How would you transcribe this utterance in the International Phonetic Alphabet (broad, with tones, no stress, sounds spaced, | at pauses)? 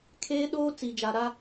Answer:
kʰ eː˦ ɗ oː˦ t͡s i˨ d͡ʒ a˨ ɾ a˦